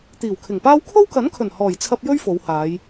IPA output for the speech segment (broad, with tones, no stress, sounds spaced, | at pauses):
t̪ iː˨˩ w kʰ ɪ˨˩ ŋ p aː˥ w kʰ o˥ w k ɐ˨˥ n kʰ ɵ˨˩ n h ɔː˨˩ j t͡sʰ ɐ˧ p̚ j ɵ˥ ɥ f o˨˧ w h aː˨˧ j